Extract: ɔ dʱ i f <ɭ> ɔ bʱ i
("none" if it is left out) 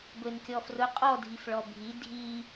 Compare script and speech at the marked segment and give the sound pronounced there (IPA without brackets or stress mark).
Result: ɭ